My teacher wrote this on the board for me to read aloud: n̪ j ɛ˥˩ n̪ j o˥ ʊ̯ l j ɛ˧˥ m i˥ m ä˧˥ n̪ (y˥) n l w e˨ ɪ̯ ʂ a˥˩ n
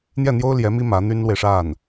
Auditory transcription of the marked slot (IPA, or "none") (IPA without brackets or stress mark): y˥